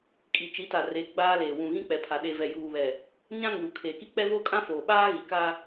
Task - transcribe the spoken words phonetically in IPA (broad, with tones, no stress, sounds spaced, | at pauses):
kʼ i˨ t͡ʃ i˨˦ t a˨ r e˨˦ ɡ͡b aː˦ l eː˨ w ũ˨ ɣ ĩ˦ k͡p ɛ˨ pʰ a˨ ɗ e˨ v ɛ˨ j uː˨ β ɛ˨ | ɲ ã˦ ŋ uː˨ kʰ eː˨ k i˦ k͡p ɛ˦ v oː˦ kʼ ã˦ f oː˨ ɓ aː˦ ɣ i˨ k a˦